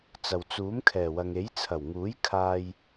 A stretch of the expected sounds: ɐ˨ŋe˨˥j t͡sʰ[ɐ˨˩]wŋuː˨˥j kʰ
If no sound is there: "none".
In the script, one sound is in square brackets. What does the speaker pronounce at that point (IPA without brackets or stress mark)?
ɐ˨˩